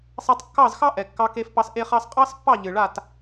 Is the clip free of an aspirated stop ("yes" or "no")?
yes